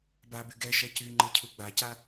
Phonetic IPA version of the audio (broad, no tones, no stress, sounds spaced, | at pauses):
b a b y ɡ ɛ ʃ ɛ c y ŋ͡ǃ ɯ cʰ u ɡ͡b a c a